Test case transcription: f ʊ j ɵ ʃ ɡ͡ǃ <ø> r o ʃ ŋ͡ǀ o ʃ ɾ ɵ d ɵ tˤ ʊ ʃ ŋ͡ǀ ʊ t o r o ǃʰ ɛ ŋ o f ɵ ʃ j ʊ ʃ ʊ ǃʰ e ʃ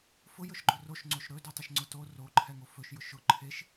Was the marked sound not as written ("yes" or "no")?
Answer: yes